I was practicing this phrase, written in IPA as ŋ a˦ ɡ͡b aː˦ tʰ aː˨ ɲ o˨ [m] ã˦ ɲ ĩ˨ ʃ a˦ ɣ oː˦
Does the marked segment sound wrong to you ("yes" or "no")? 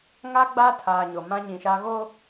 no